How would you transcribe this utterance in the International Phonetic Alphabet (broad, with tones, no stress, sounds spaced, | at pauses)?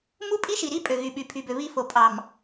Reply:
m u˦ pʼ i˦ ʃ i˨ ɾ i˦ pʼ ø˨ ɣ y˨ ɓ y˨ pʰ y˨ b ø˨ β i˦ f o˨ pʼ ɑ˨ m